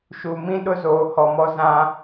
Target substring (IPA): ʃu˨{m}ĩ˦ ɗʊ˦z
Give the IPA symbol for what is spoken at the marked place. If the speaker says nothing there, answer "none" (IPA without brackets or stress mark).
m